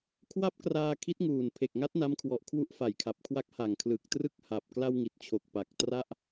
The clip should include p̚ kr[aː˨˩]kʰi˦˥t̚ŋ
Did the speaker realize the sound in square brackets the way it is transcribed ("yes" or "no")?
no